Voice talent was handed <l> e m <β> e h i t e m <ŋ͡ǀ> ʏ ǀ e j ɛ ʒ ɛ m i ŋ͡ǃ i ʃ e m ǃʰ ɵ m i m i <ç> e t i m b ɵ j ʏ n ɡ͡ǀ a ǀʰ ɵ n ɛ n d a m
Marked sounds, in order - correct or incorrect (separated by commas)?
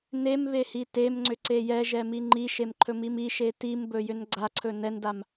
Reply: incorrect, correct, correct, incorrect